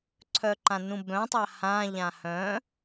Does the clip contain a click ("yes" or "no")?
yes